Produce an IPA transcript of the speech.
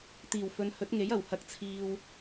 t̪iː˨˩wfɵ˨˧n hɵ˨˥t̚ŋe˨˥jɐ˨˩w hɐ˨k̚ t͡sʰiː˨w

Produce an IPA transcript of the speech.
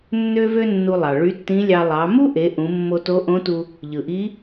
nːø˥vø˥nːu˧lˠɑ˩ ɭy˧˥tːĩ˧˥lʲɑ˧ lˠɑ˩˧ mu˥ʔe˩˧ ʔũ˩˧mːo˧to˧˥ʔõ˧˥ tu˧ | ʎɯ˩ʔi˧˥

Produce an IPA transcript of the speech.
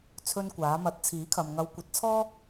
t͡sʰɵ˧nkʷaː˨˧ mɐ˨˥t̚t͡sʰiː˨˥kʰɐ˨mŋɐ˧w kʷɐ˧t̚t͡sʰɔː˥

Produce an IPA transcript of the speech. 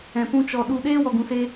ɛ̃˨pũ˧ t͡ʃɔ˨ ɗu˨ɗeː˧ wɔ˨ɡũ˨se˧

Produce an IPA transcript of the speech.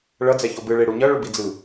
ɭʌ d͡zɛçobɯ ɭeɽuɲʌ ɭubid͡zɯ

